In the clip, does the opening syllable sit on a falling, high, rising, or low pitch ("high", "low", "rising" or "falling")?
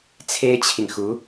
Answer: high